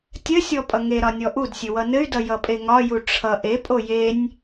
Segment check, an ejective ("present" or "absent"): present